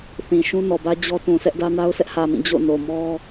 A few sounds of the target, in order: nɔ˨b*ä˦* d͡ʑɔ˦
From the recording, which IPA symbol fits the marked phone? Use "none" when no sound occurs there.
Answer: ä˦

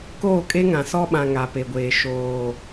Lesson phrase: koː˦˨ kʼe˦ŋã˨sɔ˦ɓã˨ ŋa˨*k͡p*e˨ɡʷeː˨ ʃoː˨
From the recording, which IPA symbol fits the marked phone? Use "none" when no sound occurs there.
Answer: p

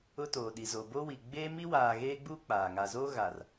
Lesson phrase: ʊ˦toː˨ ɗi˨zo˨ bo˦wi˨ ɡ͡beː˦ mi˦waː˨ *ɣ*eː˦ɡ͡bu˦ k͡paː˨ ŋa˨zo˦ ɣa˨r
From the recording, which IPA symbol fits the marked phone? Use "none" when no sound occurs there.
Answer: ɣ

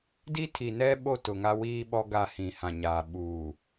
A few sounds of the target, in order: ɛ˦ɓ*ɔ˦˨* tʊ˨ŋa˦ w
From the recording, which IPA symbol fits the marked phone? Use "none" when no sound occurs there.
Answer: o˦˨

